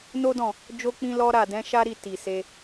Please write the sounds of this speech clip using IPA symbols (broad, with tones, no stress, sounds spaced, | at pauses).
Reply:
n o˦ d ɔ̃˦˨ | d͡ʒ o˦ k͡p ĩ˦ l ɔ˦ ɾ a˦˨ d ɛ̃˨˦ ʃ a˦ ɾ i˦˨ t i˨ s e˧